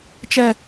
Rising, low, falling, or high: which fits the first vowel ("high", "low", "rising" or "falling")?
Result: low